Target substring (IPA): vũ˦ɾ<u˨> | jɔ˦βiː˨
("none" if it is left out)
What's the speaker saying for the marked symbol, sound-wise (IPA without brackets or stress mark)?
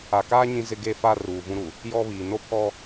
u˨